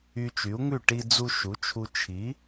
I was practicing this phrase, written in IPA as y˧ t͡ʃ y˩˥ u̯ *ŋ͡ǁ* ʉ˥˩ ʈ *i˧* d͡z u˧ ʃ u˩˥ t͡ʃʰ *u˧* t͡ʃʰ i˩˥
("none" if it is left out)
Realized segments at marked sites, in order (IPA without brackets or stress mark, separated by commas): ŋ, i˧, u˧